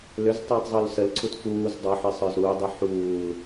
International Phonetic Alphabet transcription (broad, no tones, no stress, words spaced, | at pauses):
lʏztˤəːtˤ zˤulsəlǀʰut fuːz dˤoħe sˤə˞zɾudˤi ħuːl